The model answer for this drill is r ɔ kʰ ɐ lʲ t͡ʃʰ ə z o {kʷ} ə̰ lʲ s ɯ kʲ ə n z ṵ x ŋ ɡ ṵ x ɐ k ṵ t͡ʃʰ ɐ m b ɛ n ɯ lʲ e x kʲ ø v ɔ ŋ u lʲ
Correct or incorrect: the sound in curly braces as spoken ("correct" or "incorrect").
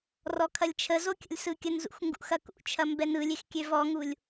incorrect